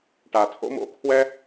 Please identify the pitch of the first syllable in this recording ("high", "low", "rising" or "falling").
low